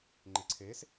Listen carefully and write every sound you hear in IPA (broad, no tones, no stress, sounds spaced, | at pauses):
ŋ͡ǃ e ǀʰ e s